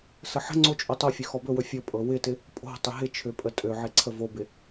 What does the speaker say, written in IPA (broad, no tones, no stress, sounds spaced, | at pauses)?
s ə ħ ə̤ ŋ͡ǀ o t͡ʃʼ o tˤ o fʲ ø x ɔ b ɵ w ɵ fʲ ɵ pʼ ɤ w ɪ t ɪ | pʼ o̤ tˤ ɪ ɦ ɪ t͡ʃʰ ø pʼ ə tʼ ø ʕ ɪ ǀʰ ə v o b ɪ